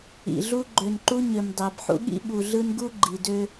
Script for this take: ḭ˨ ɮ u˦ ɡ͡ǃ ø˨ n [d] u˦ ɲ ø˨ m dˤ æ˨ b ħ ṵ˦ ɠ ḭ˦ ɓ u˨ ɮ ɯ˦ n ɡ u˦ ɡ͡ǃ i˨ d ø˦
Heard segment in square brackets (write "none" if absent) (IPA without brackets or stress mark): ǃ